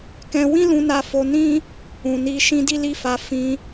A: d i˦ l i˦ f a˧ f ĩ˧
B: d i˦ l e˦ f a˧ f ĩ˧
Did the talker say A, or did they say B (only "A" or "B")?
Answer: A